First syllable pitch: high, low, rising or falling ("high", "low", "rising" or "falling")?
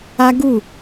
high